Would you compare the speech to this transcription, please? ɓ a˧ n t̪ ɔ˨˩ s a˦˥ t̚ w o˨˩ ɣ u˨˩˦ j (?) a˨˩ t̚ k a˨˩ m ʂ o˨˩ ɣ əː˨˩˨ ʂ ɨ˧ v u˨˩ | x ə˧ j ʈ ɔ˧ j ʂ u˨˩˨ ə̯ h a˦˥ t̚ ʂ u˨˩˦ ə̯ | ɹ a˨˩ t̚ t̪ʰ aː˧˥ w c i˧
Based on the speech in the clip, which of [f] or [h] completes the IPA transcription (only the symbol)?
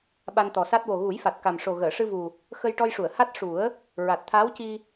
f